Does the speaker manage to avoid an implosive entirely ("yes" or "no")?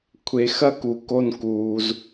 yes